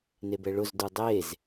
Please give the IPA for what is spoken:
nebɛɭʊzdu dˤez

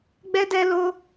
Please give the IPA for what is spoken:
ɡ͡bɛ˦dɛ˦lo˦

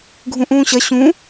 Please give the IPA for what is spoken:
ɡʱũʔũːɕɐ ɕũ

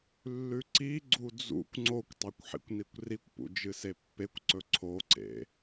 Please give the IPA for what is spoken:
lːʉǀiɡ͡ǀu d͡zṵkʷ ŋ͡ǀokʷtˤakʷ ħḭkʷnikʷrikʷpṵ d͡ʒɨsepːekʷǀɵ ǀʰoǀḛ

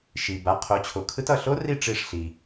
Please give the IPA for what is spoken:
ʃi˨ ba˨˥ qʰo˨˥t͡ɕʰo˨kʰɯ˦˥t ʌ˦˨ ɬo˦˥ri˦˨ ʈ͡ʂi˦˨ʂɬi˨

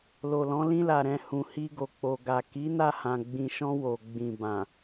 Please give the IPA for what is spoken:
lo˨lɔ̃˨˦ lĩ˧la˨ɾɛ̃˨ hũ˨ hi˧ɡo˨k͡po˨ɡa˨ ki˨˦ na˦˨hã˨ ɡ͡bĩ˨ʃɔ̃˧ wo˨ɡ͡bĩ˨ bã˨

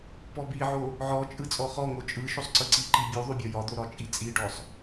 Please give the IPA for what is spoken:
pɔbiʕo | ʕɔt͡ʃʼɯ t͡sʼɔχɔŋo t͡ʃʼɯ ʃosˤǀɯǀiǃi bʲu ðˤubʲɒjɒd̪o ɾɒt͡ʃʼit͡sʼiɖɔsˤ

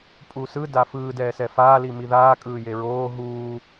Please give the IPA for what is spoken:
pʼusɯ dafɯː dɛːsɛfaː limiðaː kʼɯːjeɹoː ɦuː

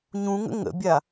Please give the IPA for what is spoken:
ɲũŋə̰ ŋə̰bʲa

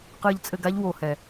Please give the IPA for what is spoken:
qɨː˧ʎt͡sʼɘ˧ɡa˦ʎ wo˨hɛ˨

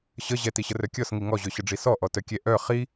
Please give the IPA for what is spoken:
ɕəʑɛ tiɕərœkʲɔs ŋiŋɔʑø ɕəɖ͡ʐisɔ ʔɔtœkʲɛ ʔœ χi

